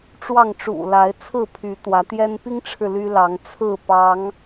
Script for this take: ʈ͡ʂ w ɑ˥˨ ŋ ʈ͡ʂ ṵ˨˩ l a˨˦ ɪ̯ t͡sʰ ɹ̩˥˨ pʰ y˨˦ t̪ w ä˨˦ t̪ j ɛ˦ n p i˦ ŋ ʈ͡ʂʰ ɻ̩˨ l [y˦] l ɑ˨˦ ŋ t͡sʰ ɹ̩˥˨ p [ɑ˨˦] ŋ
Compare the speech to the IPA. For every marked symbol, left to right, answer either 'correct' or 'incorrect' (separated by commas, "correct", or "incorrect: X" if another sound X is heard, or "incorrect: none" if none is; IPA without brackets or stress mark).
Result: correct, correct